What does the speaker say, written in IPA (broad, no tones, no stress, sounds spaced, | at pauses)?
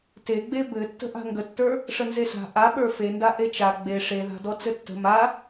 t e ɡ͡b e b ɘ tː ə̤ ʔ a̤ ŋ ɡ ə tː ə˞ | ʂ ə n z e s a̤ ʔ a ɓ ə˞ f e n d a ʔ e t͡ʃ a ɡ͡b e ʂ e ð a̤ d ɔ t͡s ɘ tː ə̤ m a